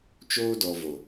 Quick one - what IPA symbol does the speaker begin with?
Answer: t͡ʃ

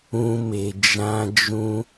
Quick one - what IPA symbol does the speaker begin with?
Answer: ũ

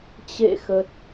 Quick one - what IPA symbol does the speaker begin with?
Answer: t͡ɕ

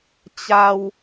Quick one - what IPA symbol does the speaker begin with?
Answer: t͡ɕ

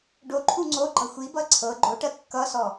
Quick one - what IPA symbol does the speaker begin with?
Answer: ɖ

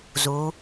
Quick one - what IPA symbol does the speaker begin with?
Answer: z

